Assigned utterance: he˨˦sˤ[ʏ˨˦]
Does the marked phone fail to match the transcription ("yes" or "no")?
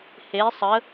yes